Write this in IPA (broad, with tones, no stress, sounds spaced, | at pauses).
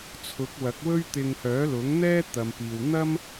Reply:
t͡sʰ ʊ˨˥ k̚ w ɐ˨˥ k̚ w ɵ˥ ɥ t̪ ɪ˧ ŋ h œː˨˥ l ʊ˨˥ ŋ n̪ ɛː˥ t̪ ɐ˨ m p iː˨ w n̪ ɐ˥ m